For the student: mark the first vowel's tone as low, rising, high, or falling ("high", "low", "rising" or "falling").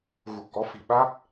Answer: low